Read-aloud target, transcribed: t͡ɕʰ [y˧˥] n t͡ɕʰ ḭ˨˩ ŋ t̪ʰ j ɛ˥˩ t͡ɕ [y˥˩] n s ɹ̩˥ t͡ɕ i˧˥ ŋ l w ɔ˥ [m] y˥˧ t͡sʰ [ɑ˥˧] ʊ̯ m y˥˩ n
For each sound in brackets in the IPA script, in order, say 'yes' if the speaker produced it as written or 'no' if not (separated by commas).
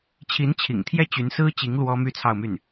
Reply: no, no, yes, yes